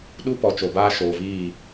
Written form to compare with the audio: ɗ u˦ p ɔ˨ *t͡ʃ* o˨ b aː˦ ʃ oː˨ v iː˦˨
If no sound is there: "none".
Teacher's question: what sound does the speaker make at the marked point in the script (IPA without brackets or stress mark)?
t͡ʃ